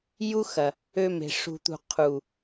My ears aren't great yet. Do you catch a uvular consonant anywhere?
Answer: yes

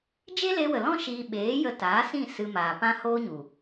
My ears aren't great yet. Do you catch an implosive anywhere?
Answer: yes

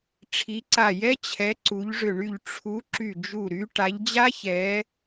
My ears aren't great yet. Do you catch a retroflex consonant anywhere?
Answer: yes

